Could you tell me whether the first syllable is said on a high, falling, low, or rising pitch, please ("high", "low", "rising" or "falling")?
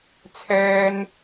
high